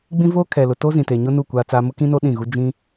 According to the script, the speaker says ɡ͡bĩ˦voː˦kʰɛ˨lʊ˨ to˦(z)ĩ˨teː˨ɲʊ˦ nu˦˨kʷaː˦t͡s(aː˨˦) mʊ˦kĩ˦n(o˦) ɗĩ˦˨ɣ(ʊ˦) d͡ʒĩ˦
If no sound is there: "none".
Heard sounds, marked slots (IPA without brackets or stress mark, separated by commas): z, aː˦, o˦, u˦